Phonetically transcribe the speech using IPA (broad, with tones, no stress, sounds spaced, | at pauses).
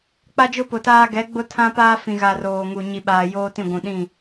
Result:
k͡p a˦ d͡ʒ ʊ˦ p ʊ˨ t aː˦ ɡ ɛ˨˦ ɡ͡b ʊ˦ tʰ ã˦ p aː˦ f ĩ˨ ɣ a˨ r oː˨ ŋ u˨ ɲ i˨ ɓ aː˨ j oː˦ t ĩ˦˨ ɡʷ ũ˨ ɗ ĩ˦˨